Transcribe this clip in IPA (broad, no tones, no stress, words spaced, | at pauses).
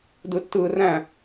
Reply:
dɯtːɯːræ̃